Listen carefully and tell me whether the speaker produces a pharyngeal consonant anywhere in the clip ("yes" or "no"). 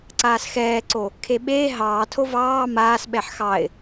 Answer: yes